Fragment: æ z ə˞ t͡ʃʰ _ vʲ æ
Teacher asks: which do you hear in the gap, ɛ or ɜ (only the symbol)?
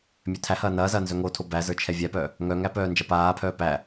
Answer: ɛ